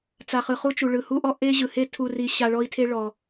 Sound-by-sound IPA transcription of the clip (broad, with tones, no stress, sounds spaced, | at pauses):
t͡s a˧ χ ɯ˧ χ u˥ t͡ʃ u˧ ɭ ɯ˧ h u˥ ʔ ɔ˥ ʔ e˥ ʑ ɯ˧ h e˥ tʰ u˥ r i˥ ɕ a˥ ɭ ɔ˥ i̯ tʰ e˥ ɭ ɔ˧